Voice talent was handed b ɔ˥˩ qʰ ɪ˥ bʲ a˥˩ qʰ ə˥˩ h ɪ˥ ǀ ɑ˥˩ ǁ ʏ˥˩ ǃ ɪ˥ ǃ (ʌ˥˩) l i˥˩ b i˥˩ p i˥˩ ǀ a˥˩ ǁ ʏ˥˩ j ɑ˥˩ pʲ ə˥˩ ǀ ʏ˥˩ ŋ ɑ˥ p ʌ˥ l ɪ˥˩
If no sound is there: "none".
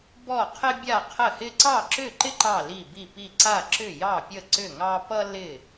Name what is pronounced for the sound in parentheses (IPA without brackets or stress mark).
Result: ɑ˥˩